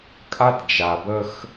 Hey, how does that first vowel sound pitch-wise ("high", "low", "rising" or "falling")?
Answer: high